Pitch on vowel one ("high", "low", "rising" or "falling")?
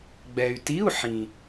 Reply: low